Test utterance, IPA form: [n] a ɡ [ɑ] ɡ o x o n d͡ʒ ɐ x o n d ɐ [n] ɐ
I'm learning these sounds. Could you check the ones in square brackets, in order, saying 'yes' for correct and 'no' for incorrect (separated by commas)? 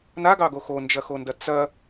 yes, yes, no